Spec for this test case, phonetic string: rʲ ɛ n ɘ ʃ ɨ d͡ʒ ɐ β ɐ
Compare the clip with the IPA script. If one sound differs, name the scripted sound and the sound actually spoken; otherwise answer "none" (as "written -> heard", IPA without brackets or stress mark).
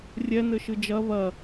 none